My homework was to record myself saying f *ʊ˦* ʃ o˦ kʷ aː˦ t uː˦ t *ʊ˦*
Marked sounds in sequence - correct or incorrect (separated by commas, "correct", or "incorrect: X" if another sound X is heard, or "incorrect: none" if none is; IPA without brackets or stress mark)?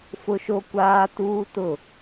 correct, incorrect: ʊ˦˨